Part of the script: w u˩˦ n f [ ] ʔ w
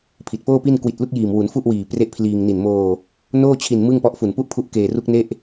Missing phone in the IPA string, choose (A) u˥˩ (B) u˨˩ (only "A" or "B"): A